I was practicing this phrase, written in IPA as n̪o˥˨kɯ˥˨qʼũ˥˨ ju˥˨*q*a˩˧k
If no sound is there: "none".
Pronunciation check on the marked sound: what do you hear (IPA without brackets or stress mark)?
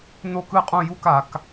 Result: k